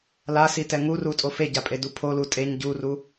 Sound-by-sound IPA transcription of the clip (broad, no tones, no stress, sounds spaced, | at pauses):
l a s i t ɛ ŋ u r u tʼ o f e ɟ a pʼ e d u pʰ o l u tʼ e ɲ ɟ u r u